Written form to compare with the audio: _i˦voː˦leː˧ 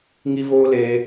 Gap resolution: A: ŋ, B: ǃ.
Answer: A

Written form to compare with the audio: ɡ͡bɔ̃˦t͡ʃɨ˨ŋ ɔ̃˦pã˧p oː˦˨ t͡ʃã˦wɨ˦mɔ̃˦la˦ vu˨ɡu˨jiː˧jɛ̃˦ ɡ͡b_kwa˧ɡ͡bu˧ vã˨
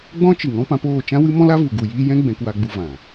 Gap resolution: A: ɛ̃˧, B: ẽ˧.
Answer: A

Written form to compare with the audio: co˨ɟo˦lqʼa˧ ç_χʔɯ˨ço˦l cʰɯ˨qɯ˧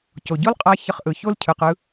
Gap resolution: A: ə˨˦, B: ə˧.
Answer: B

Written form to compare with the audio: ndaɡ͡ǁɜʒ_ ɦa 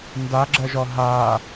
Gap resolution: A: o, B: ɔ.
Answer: B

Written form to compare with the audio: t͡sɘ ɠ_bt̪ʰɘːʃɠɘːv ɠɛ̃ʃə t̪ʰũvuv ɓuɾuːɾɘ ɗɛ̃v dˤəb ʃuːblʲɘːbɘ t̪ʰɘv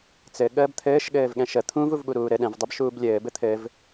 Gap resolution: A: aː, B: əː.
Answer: B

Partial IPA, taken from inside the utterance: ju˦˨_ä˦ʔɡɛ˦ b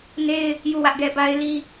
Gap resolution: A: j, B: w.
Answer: B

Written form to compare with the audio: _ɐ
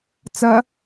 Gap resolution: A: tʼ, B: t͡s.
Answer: B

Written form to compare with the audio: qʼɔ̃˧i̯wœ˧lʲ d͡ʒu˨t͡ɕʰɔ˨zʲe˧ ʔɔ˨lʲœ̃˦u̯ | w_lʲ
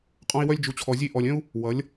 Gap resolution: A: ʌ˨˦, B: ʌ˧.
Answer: A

